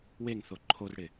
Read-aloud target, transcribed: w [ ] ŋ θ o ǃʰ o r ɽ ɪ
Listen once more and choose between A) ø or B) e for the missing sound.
B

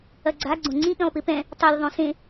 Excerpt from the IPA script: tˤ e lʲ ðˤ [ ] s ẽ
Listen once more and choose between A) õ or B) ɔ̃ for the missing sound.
A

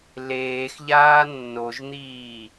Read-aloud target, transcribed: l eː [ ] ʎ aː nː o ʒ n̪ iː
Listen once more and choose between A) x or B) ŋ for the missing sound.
A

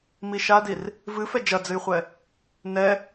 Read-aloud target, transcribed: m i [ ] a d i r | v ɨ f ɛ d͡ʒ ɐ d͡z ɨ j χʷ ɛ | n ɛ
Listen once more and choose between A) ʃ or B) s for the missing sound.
A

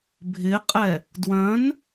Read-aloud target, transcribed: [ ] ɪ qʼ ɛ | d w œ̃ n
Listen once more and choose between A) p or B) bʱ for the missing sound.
B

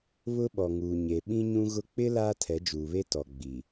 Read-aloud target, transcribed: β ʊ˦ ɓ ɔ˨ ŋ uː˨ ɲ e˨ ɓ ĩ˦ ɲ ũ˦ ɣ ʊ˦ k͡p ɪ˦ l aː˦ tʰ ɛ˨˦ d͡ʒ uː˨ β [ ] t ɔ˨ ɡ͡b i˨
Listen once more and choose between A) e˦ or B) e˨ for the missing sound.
A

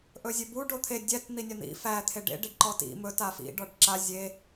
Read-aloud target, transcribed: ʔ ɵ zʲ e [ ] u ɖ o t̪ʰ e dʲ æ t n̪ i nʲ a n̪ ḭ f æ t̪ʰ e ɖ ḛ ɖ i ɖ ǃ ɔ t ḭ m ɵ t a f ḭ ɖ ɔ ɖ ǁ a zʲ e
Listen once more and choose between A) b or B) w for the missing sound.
A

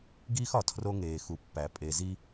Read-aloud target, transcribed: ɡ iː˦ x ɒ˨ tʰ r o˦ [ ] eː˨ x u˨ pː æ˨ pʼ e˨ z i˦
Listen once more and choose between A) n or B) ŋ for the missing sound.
B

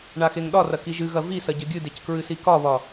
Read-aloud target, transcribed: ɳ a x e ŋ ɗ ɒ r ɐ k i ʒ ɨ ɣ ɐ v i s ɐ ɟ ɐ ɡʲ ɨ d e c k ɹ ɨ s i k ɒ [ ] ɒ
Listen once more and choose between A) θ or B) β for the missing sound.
B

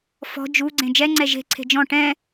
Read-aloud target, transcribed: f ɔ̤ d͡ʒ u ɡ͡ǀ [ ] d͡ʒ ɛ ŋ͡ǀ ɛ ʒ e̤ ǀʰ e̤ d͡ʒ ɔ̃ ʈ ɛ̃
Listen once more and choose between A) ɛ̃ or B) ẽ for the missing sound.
B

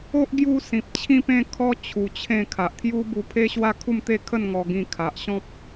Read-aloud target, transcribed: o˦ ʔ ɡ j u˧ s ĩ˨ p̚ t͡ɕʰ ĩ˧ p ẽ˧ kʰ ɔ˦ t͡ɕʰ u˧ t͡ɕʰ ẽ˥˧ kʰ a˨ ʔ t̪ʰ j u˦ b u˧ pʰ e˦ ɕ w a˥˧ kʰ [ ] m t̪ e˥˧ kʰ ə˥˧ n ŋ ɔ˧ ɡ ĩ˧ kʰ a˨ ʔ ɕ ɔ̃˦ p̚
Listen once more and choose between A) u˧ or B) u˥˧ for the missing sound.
B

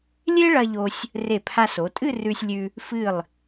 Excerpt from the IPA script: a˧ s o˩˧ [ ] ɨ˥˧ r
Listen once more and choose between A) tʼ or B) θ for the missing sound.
A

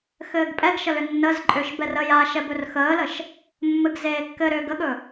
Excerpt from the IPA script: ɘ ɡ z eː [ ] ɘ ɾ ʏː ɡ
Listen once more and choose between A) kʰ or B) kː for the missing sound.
B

